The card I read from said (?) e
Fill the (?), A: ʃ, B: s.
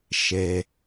A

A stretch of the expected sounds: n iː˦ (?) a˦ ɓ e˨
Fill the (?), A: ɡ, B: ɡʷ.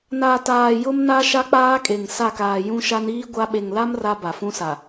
B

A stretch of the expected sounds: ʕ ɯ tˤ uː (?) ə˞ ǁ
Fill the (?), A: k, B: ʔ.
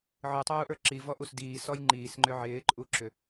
B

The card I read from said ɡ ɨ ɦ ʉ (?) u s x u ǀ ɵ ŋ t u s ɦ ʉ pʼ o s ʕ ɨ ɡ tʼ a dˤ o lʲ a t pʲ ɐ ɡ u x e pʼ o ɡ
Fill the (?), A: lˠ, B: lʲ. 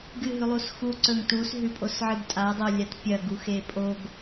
A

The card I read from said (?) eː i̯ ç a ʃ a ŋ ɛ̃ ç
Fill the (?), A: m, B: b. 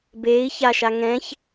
B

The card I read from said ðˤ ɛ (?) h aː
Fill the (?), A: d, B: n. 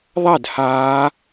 A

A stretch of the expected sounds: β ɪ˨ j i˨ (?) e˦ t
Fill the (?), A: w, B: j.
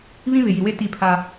A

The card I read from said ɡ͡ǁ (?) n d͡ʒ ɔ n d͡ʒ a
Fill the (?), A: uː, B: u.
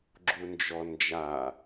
B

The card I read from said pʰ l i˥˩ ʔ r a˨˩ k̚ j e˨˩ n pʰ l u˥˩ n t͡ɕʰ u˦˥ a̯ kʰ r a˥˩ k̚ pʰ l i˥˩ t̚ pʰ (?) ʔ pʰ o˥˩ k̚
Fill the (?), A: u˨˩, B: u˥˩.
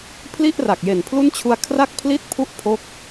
B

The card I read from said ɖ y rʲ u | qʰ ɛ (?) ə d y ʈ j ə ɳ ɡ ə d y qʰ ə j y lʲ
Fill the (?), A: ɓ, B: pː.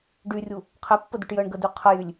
B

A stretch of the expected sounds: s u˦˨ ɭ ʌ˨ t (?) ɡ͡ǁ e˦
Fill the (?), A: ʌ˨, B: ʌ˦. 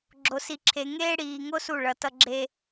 B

